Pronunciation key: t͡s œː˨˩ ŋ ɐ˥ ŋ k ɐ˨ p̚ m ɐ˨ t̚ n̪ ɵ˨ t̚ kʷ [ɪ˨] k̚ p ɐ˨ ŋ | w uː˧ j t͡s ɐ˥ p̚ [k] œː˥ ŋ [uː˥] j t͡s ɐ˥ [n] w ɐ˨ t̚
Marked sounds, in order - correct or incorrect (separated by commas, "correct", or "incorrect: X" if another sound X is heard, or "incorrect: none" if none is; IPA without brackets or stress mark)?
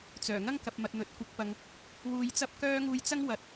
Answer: incorrect: ɪ˨˥, correct, incorrect: uː˧, incorrect: ŋ